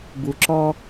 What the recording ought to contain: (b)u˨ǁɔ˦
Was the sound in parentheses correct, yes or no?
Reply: yes